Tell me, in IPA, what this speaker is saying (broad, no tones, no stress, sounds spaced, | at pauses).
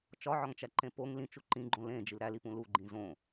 t͡ʃ ɒ ʕ ɒ ŋ t͡ʃ æ ǃ ẽ p o ŋ l ĩ t͡ʃ u ǃ ĩ ɡ͡ǃ õ l ẽ d͡ʒ i l ɾ æ l i p ũ l u ɡ͡ǃ ĩ z õ